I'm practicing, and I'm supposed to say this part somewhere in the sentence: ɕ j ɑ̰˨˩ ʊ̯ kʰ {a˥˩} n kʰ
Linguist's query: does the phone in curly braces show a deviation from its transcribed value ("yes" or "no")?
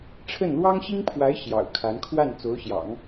yes